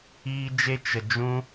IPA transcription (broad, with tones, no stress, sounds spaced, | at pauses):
iː˦ d͡ʒ e˦ t͡ʃ ə˨ d͡ʒ ũ˦